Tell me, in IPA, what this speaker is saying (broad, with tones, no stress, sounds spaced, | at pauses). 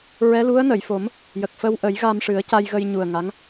ɹ ɛ˧˥ l u˧˥ ə̯ n ə˨˩˨ j f o˨˩˦ m | j ə˨˩ k̚ f ə˧ w ʔ ə˨˩˦ j ɣ a˧ m ʂ ɨ˨˩˦ ə̯ c a˧ j ɣ ə˧ j ɲ u˨˩ ə̯ ŋ a˧˥ ŋ